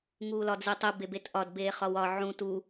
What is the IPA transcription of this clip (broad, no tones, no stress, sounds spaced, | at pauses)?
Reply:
ŋ uː l ɒ d͡z i tˤ i b e b e t ʔ ɒ d b eː χ ɒ w ɒ ʕ ũ t u